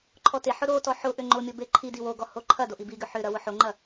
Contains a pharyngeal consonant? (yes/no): yes